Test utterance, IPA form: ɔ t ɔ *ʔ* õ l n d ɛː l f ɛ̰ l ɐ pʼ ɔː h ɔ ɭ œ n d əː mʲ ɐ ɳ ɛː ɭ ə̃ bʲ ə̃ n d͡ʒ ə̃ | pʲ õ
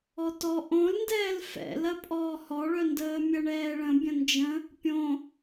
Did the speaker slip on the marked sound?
no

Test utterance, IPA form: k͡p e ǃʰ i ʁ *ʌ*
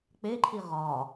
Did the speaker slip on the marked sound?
yes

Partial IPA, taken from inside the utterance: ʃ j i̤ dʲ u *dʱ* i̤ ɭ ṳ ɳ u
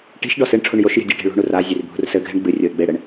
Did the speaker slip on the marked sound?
yes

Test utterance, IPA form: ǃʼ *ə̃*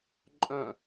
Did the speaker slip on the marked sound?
yes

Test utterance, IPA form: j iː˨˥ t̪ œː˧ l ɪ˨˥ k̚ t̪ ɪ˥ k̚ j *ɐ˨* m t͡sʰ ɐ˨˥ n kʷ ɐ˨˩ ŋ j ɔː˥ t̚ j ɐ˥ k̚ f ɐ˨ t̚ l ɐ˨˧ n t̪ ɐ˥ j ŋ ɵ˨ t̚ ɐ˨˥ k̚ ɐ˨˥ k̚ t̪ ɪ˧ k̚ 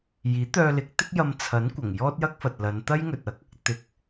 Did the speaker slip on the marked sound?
yes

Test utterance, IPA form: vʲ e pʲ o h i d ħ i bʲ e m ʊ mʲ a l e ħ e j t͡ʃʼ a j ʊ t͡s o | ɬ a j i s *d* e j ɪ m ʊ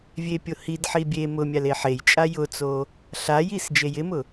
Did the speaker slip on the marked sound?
yes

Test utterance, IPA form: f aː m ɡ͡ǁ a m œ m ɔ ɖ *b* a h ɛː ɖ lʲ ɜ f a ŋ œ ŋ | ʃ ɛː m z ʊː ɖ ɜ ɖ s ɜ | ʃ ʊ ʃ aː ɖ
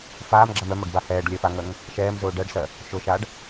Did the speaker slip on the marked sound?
no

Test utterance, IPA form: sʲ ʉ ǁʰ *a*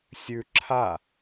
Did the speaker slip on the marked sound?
no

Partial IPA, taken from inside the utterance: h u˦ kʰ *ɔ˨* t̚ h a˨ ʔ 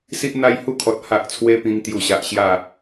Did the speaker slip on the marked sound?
no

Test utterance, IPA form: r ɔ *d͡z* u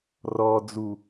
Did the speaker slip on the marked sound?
no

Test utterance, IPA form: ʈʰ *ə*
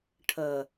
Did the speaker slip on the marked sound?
no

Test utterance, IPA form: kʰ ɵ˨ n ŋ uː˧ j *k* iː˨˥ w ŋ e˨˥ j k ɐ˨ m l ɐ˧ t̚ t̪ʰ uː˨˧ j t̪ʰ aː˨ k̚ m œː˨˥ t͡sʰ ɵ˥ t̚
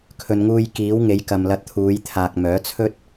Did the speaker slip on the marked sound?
no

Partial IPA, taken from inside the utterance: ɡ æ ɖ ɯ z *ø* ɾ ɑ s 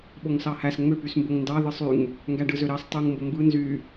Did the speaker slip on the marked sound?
no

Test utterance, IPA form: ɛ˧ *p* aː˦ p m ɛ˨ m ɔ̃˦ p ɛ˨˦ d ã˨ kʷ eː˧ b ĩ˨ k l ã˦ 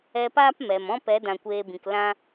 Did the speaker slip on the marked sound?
no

